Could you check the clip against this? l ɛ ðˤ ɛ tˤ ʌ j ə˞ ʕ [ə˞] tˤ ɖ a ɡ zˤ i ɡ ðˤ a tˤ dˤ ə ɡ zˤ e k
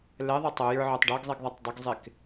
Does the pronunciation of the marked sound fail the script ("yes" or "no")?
no